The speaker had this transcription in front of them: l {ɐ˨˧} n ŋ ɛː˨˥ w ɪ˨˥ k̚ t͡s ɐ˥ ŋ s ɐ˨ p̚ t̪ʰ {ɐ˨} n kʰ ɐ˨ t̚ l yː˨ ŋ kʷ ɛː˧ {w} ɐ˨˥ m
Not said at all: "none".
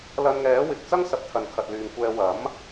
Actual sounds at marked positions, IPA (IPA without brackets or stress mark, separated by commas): ɐ˧, ɐ˨, w